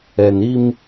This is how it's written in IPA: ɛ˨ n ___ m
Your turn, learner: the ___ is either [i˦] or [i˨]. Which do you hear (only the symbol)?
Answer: i˦